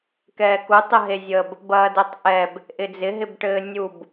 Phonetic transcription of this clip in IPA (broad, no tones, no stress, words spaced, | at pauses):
kɛːku tˤəɦezʲəb | bɐːdɘtˤʔɛb | ʔɪd͡zɪ ɦɪbʈɘːnʲub